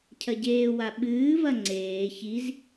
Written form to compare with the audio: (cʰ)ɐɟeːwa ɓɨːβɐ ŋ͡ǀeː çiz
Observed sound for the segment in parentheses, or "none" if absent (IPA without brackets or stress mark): cʰ